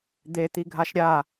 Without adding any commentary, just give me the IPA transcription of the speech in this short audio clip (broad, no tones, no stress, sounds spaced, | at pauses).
d̪ e t̪ i ɡʱ a ʃ ɾʲ a